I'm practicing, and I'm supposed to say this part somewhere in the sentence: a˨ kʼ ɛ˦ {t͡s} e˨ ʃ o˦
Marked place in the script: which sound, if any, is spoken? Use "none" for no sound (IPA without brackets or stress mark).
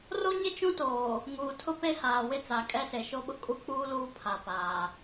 s